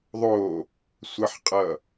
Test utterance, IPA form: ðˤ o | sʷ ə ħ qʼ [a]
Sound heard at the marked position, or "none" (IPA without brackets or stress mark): ʌ